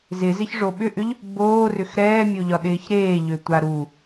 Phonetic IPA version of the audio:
z ɪ z ɪ ç ʐ o ɓ ʏ ʔ ʏ ʎ | b oː r ʏ x ɾ ɛː mʲ o ʎ ɒ ɗ ɪː ç ɾ eː ʎ ø tʷ a ɾ u

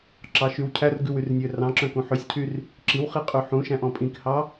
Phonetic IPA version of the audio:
ǁ ɑ ʃ y w cʰ æ r ɡ ʉ w y r nʲ ø r ɑ̃ ǁ œ̃ k ũ ħ ø sʲ cʰ y r | ǁ i w χ i qʼ ʉ ħ ũ ʃ æ̃ ʔ ɔ̃ pʼ ĩ k h ɑ

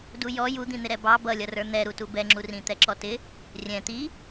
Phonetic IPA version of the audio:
d u j ɔ j u d̪ ĩ n̪ ɪ ɾ ɛ b ɑ b ʌ lʲ ʌ r ə˞ n̪ ɛ ɾ u t u b ɛ ŋ͡ǁ u r ĩ t̪ ɛ ǁ ɔ t ɪ | rʲ ɛ̃ t̪ i

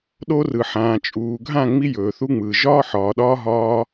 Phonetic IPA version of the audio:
ɗ o˧ r ɯ˨ ħ ãː˨ t͡ʃʼ uː˨ ɡʱ ã˦˨ ŋ͡m i˧ j ɵː˨ θ u˧ ŋ͡m ɯː˨ ʒ ɒː˦ ħ ɒː˨ ɗ ɒː˧ ɦ ɒː˧

